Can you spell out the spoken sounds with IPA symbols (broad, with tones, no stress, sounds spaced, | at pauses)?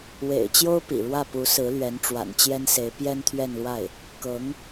w ḛ˨˩ ɪ̯ t͡ɕ j o˥ ʊ̯ p ḭ˨˩ ɻ w ä˥˩ p u˧˥ s ɹ̩˧˥ l ɥ ɛ˧˥ n ʈ͡ʂ w a̰˨˩ n t͡ɕ j ɛ˥ n s e˧˥ ɪ̯ p j ɛ˥ n t̪ʰ ɥ ɛ˥˧ n l w a˥˩ ɪ̯ | k ɤ˧˥ ŋ